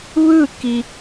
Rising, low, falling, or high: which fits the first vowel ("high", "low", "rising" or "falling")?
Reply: falling